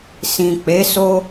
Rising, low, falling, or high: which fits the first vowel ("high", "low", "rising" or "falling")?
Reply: low